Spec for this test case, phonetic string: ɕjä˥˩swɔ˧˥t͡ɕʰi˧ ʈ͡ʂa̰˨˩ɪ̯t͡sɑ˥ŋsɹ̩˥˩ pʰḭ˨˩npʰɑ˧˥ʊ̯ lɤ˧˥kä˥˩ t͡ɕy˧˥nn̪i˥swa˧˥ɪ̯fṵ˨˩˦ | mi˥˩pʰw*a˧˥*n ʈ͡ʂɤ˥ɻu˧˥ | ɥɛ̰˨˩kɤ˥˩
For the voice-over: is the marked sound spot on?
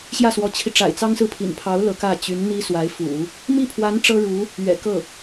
yes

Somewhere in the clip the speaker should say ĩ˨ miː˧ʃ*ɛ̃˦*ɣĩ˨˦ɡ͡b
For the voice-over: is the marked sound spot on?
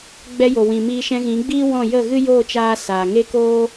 no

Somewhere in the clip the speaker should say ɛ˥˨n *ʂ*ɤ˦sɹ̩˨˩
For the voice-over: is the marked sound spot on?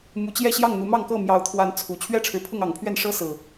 yes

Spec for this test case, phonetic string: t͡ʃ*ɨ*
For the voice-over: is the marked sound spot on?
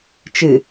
yes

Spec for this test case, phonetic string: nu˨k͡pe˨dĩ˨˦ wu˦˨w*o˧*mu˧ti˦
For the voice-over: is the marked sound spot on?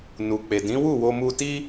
yes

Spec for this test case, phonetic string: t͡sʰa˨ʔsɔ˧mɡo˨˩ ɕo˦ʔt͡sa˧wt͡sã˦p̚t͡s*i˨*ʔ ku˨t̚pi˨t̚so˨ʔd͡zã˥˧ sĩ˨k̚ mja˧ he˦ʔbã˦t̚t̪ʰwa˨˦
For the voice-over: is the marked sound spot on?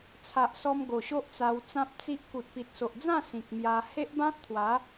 no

